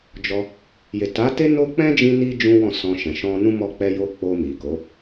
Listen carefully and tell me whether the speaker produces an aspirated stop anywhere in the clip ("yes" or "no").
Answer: no